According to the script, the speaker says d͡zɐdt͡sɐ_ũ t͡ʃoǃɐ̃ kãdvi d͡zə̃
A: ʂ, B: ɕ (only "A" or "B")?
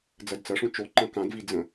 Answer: A